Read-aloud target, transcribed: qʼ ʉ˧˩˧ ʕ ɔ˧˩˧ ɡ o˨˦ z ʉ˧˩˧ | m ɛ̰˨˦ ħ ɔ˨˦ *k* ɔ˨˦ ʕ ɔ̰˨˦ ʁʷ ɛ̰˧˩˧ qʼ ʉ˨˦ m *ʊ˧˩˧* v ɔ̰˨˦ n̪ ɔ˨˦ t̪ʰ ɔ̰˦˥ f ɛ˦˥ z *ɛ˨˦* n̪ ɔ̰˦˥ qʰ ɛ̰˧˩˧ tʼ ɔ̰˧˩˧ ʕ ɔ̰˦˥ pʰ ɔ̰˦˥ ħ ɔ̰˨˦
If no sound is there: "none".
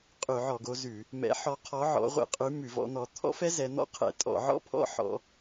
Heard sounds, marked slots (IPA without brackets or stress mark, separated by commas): qʰ, ʉ˧˩˧, ɛ˨˦